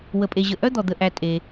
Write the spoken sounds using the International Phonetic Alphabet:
w ə˩ pʼ e˩ ʑ ə˩ ʔ œ˥˧ d̪ ɔ˩ d̪ ə˩ ʔ æ˩ tʼ e˩

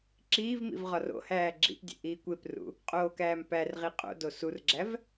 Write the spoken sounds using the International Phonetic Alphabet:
ǁ iː v m ḭ v ʁ ɒ r o̰ h æː ɡ͡ǁ ḭ p dʲ ḛ ʔ iː kʷ e p r ṵ | qʼ oː k æː m p æ r ʁ i qʼ o̰ d o s u r ɡ͡ǁ æ v

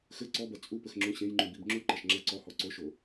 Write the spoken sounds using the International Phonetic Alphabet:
x ɘ ǀ ɔ b ɐ t͡sʼ u p ɘ x ŋ͡ǁ ũ ɕ ẽ j ŋ͡ǃ ũ b i b ŋ͡ǁ u ǃ ɐ ʃ ŋ͡ǁ ɐ ǀ ɔ h ɔ ǀ o ʃ o

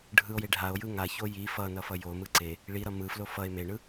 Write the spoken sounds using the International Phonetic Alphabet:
ɖʱ ɯ o̯ j e ɖʱ a o̯ j ɯ ŋ a ç o j i f ʌ n ʌ f ʌ j o m ɯ ǀ e | ɭ i ɾ ʌ m ɯ f l o f ʌ e̯ m e ɳ ɯ

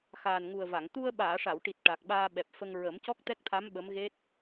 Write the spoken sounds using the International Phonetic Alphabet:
x aː˨˩ n ŋ u˨˩ ə̯ v a˨˩˨ ŋ t̪ u˧ ə̯ ɓ aː˨˩˨ ʂ a˨˩˨ w ʈ i˨˩ t̚ ʈ a˨˩ k̚ ɓ aː˧ ɓ ɛ˨˩ p̚ f ə˧ ŋ ɹ ə˨˩˦ m c ɔ˦˥ k̚ t̪ ɛ˦˥ k̚ t̪ʰ a˧˥ m ɓ ə˧˥ m ɣ e˦˥ t̚

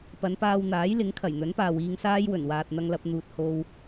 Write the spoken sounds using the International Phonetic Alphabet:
p ɐ˨˧ n p aː˧ w n̪ aː˨˥ j l ɪ˨˥ ŋ kʰ ɐ˨˩ j n̪ ɵ˨˥ n p aː˨ w iː˧ ŋ s aː˥ j w ɵ˨˩ n w aː˨ t̚ n̪ ɐ˧ ŋ l ɐ˧ p̚ n̪ uː˨ t̚ h o˧ w

